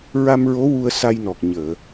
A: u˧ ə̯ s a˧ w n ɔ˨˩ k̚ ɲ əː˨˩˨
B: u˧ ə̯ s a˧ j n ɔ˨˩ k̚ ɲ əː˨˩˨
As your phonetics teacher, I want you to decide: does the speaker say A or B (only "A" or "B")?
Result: B